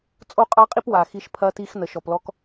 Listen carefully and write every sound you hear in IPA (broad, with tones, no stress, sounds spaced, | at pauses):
t͡sʼ o˦ qʼ ɑ˦ qʼ i˦ p w a˨ x i˦ ʃ pʰ ɐ˦ t i˦ x n ə˨ ʃ ɔ˨ p l ɔ˦ k